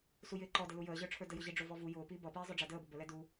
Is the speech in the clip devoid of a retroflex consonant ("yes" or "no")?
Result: no